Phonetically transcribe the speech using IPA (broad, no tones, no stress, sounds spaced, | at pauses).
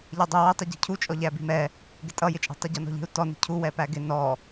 ʎ ɛ dˤ i w i tˤ u ɟ i̤ cʰ u t͡ʃʼ ɔ ʎ æ b i̤ m ɛ | ɡ ɪ tʼ ʌ j ɪ t͡ʃʼ i̤ tˤ u ɟ ɔ n ɔ̤ ʎ i̤ u̯ t ɔ n i̤ cʰ u w ɛ p æ ɡ ɪ n ɔ